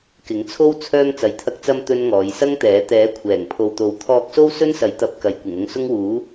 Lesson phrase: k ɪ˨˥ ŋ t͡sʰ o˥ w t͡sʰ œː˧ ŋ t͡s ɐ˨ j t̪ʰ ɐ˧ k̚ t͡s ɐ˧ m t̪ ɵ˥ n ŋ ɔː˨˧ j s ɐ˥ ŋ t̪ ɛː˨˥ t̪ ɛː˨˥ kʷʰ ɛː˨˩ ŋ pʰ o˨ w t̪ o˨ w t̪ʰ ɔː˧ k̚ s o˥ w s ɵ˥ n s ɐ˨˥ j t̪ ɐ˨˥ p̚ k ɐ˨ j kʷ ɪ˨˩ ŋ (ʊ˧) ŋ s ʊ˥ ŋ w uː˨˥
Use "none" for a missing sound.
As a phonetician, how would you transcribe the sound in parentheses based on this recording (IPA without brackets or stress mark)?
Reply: ʊ˧